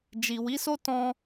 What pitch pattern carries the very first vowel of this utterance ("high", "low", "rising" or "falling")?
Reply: low